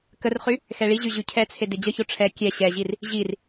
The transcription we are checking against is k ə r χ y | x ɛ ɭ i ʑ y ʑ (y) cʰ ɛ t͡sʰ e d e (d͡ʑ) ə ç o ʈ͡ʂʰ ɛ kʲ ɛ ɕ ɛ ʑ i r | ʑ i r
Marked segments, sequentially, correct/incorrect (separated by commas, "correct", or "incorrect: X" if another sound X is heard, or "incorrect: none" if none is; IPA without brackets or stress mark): correct, correct